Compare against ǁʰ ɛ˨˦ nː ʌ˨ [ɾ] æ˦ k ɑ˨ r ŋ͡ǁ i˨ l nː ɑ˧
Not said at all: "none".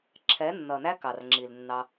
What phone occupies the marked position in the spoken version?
n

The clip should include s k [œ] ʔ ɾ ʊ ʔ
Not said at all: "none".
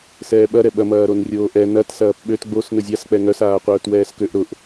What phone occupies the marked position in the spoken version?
ø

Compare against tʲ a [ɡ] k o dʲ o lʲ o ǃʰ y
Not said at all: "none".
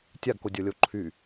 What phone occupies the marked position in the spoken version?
ɡ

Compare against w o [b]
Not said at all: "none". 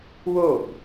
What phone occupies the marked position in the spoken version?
b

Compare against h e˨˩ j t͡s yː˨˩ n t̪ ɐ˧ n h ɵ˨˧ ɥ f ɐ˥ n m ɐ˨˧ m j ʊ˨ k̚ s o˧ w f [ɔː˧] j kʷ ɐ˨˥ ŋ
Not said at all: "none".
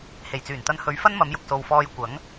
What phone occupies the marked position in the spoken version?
ɔː˧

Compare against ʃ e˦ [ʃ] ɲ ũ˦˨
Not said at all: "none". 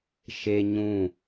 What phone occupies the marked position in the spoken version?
none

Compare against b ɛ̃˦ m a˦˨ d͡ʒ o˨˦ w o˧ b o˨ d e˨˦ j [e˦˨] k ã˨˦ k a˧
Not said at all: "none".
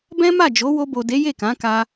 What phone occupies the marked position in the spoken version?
e˦˨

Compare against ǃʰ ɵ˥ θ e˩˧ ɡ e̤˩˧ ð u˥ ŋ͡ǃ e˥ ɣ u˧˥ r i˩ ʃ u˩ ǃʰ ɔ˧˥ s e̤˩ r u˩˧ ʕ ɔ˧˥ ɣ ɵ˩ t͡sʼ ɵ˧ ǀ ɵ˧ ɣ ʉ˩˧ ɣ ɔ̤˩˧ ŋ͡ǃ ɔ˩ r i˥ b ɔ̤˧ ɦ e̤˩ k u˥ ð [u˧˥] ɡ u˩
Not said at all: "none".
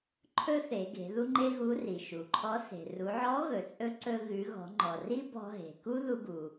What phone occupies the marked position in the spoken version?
u˧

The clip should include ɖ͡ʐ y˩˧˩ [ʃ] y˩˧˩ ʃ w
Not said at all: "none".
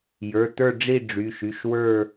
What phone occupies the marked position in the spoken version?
ʃ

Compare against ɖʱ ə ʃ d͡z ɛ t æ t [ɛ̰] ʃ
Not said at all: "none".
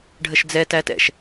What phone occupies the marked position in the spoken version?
ɛ̰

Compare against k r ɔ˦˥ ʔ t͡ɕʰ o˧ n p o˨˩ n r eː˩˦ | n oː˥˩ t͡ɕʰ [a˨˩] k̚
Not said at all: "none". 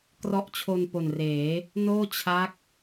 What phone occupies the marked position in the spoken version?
a˦˥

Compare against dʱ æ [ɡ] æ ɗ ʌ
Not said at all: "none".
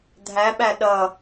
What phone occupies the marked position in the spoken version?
ɓ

